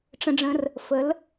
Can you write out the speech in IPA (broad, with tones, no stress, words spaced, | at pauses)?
ʈ͡ʂə̃˧ɖ͡ʐə̃˧r | fə˩˧l